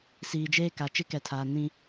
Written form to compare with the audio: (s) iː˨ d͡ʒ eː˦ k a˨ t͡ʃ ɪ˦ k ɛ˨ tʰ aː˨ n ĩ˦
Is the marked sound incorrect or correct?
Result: correct